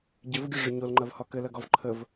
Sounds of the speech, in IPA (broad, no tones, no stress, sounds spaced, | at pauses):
ɟ ɘ v ɡʲ ɐ ʐ ə ɲ o l ŋ͡ǃ ɐ v h ɒ k ɘ l ɐ ɡ ɔ v ǃʰ ə v